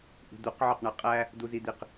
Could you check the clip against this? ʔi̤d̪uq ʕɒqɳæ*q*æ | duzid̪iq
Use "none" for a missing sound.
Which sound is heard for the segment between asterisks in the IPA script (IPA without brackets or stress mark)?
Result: qʼ